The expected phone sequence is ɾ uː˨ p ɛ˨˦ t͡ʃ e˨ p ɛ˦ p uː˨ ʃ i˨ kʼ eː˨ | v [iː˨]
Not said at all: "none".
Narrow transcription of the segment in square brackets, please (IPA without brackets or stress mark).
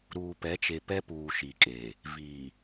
iː˨